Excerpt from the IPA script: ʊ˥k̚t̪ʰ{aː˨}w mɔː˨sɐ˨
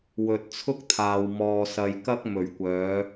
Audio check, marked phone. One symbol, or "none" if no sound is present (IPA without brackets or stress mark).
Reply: aː˨